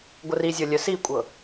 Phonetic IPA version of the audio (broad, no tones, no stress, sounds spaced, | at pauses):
ɡʷ ə r i zʲ ɤ lʲ œ s i kʷʼ ɤ